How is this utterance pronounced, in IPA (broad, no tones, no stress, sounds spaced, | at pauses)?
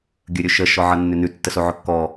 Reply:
ɡʲ ɵ ɾʲ ɵ ʃ ə ʃ ɔ ʕ ʌ nː ʏ n ʉ tː ə s o ʕ ɵ kː ɔ